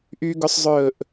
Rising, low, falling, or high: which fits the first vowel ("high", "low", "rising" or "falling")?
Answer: high